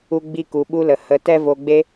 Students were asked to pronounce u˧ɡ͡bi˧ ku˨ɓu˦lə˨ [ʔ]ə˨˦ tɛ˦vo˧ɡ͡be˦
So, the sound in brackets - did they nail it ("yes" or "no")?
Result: no